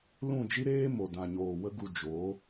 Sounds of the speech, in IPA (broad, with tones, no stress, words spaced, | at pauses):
lũ˦˨d͡ʒi˦ɾeː˦ mo˨ dã˨ɲoː˨wə˦ ɡu˧ d͡ʒoː˨˦